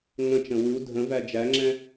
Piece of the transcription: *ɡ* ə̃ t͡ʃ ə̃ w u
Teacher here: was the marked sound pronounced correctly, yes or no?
no